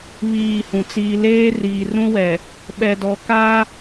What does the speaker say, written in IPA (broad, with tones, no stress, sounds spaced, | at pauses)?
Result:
β iː˦˨ h ũ˨ t͡s iː˦ l eː˦ r iː˨ r ũ˦ w ɛ˨ | ɓ ɛ˨ d ɔ˨ k aː˦